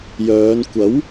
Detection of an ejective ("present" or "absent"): absent